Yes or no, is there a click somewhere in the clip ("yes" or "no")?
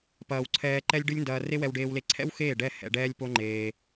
yes